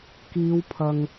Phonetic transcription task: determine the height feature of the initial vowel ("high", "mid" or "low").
high